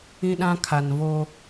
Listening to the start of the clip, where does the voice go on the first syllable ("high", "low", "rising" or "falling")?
high